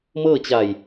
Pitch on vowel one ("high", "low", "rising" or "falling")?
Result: falling